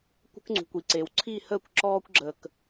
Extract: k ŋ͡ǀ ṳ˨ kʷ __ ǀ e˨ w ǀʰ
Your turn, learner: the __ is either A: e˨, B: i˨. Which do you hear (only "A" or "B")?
B